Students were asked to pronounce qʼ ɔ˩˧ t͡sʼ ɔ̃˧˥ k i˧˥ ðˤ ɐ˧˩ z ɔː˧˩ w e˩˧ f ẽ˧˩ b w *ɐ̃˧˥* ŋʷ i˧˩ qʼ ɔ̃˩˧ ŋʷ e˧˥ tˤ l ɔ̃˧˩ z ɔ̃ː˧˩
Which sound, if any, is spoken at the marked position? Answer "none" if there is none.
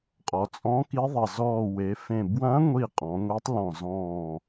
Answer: ɐ̃˧˥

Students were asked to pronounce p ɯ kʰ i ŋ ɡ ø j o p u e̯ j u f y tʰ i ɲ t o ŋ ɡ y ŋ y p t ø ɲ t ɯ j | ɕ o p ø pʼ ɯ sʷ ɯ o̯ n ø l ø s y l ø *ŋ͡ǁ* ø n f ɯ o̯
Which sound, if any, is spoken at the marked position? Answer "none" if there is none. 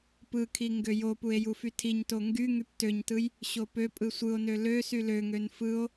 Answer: ŋ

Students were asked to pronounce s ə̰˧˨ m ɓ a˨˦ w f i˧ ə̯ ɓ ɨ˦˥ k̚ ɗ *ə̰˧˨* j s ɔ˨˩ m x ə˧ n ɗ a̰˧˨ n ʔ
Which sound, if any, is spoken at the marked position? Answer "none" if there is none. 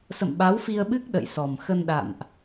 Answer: ə̰˧˨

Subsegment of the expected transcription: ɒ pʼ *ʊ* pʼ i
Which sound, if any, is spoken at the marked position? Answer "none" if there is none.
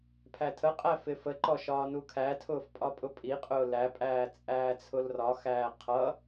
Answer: ʊ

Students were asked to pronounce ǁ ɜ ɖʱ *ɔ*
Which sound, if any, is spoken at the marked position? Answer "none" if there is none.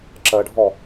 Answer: ɔ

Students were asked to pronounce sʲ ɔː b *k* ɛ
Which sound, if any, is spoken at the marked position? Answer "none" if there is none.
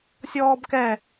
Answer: k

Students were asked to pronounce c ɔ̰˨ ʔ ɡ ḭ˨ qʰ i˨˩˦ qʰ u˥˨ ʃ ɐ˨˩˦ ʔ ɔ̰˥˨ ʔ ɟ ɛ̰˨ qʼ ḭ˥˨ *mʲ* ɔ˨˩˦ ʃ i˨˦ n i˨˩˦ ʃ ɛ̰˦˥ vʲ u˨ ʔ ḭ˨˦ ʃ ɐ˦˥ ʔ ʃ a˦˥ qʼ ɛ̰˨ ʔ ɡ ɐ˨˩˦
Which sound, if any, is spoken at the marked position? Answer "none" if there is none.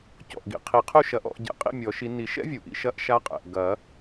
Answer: mʲ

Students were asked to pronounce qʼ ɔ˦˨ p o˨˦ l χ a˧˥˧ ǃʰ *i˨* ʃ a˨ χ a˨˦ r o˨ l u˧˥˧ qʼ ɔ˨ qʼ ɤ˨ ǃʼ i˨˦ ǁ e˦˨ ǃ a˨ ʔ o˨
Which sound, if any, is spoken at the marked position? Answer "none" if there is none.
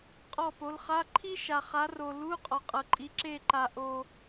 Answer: i˥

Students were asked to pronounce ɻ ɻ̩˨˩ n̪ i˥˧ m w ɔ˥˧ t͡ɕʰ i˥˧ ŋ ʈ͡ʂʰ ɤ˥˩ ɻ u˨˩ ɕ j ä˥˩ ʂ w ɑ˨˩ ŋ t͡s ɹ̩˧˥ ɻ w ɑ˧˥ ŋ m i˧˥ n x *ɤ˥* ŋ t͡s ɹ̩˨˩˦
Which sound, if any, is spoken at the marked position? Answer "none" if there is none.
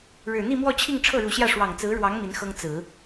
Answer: ɤ˥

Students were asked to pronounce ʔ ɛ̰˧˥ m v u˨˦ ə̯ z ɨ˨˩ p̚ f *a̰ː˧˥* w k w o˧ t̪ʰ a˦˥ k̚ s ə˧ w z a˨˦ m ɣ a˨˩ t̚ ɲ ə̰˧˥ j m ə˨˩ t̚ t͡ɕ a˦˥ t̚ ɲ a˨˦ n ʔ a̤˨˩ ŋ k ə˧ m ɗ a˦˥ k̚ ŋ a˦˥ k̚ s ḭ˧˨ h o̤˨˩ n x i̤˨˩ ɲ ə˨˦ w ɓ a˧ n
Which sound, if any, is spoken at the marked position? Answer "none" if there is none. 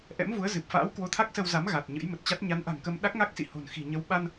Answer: a̰ː˧˥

